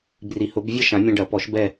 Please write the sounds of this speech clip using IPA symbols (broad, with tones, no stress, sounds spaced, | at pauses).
b r i˨˩˦ h ʊ˨˩˦ b vʲ ɐ˥˧ ʃ ã˨˩˦ mʲ ã˧ ɖ ɐ˨˩˦ p ɔ˨˩˦ ʃ b ɛ˥˧